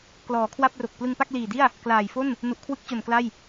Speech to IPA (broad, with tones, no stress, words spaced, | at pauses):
klɔː˩˦kʰwa˥˩p̚ro˨˩k̚ plɯ˧ŋpa˥˩k̚liː˨˩di˥˩a̯ | klaː˨˩jfo˥˩n | nu˨˩ʔkʰwɯ˦˥k̚t͡ɕo˨˩n kla˥˩j